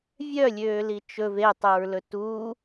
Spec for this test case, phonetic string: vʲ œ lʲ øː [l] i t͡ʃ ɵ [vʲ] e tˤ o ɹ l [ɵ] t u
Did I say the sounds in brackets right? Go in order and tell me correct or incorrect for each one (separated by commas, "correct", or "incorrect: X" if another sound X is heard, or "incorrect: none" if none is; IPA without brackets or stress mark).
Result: correct, incorrect: v, correct